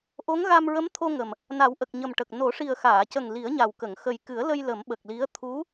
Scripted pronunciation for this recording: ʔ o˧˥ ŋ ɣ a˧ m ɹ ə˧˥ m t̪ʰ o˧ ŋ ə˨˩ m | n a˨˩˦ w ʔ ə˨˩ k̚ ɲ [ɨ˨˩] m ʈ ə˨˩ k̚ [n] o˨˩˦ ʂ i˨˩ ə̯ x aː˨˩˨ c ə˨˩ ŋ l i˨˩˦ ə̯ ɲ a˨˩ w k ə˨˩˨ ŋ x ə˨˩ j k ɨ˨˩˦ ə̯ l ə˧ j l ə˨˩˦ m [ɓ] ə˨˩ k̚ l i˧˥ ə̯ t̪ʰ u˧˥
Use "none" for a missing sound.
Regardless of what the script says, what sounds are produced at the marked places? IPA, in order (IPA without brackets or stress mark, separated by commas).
ə˨˩, n, ɓ